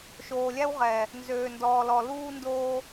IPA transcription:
ʃoː˨lʲæ˦wʁɛː˨ | nzøː˨ndɔː˨lɔ˨ luː˦ndoː˦

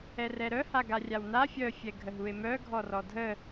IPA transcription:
ɛrɛɾœ haɡarʲawna fʲœ fʲɛɡʱəɦue̯mœ ɡʱɔrɔdʱə

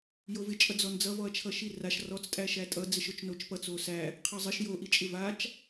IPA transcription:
jovɪt͡ʃʼʌ d͡zɔnd͡zʌvɔɐ̯t͡ʃʰʌ ʃiraʃ rɔt͡stʼæ ʃætʼʌd͡zɪʃot͡ʃ not͡ʃpʌt͡s osæ | qʰʌzˤɪʃ joʔit͡ʃʼɪ vat͡ʃ

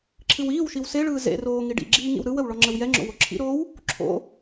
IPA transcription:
ǁʰɨwiːwʃiw seɭɯː zḛroː ŋiɖḭɡ͡ǁiː ŋḭwɾɯwəw ɭɔŋ͡ǁəwjɛŋ͡ǁo̰ woǁʰḭɾoːw | ǁʰo̰

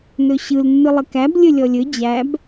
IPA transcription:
nɵɕɯl nːɯlˠəkæb lʲɵlʲɔlʲɵ d͡ʑæb

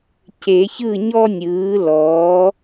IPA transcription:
ce˨˩˦çɯ˥˨ɲɔ˥ nʲɯː˩˥lɔː˩˥

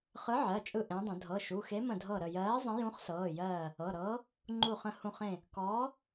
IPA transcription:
χɯ˨˥ʕɜ˩˧˩t͡ʃʼɯ˧˩ ʔẽ˨˥dˤə̃˨˩˦ dʱɤ˩˧˩ʃu˩˧˩xe˨˥ mə̃˧˩dʱɤ˧˩ɾə˧˩ jɜː˨˥ zˤə̃˨˥jũ˨˥χsɤː˩˧˩jɜː˧˩ | ɤ˩˧˩ɾɤː˨˥ | ŋ͡ǃu˧˩χə̃˧˩ hũ˧˩χẽ˧˩ | kɔː˨˥

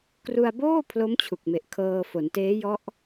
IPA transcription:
kru˧a̯boː˥˩ pʰlo˦˥m t͡ɕʰu˨˩k̚me˨˩ʔkʰɤː˧fo˩˦n teː˦˥jɔ˦˥ʔ

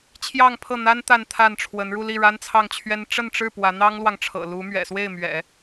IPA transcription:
t͡ɕʰjɑ˥˧ŋpʰɤ˥˩n̪a˥n t̪a˥˧nt̪ʰa˥˩nʈ͡ʂʰwə˧˥n ɻu˥˧ li˥˩ ɻa˥nt͡sʰɑ˥˩ŋt͡ɕʰɥɛ˥n ʈ͡ʂə˥˧nʈ͡ʂɻ̩˥˩ pwä˧˥n̪ɑ˥ŋlwɑ˨ŋʈ͡ʂʰɤ̰˨˩ lu˧˥mɥɛ̰˨˩swe˥˩ɪ̯mɥɛ̰˨˩˦

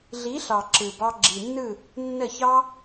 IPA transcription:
ɮi˨˦ɬɑ˨ ǁɯ˨bɑ˧ ɡ͡ǁi˨nːɯ˦˨ | nːə˦˨çɑ˦

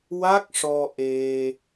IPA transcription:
wa˦˥k̚ʂɔ˧ ʔe˧

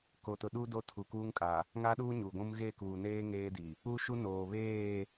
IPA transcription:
ko˨tʊ˨ɗu˦ do˦tʰu˨kuː˦ŋkʼa˨ | ŋa˦ɗuː˦ɲu˨ɡʷũ˦m ɣe˦˨kuː˨neː˦ ŋeː˦di˨ | u˦ʃu˦ noː˨ βeː˦˨

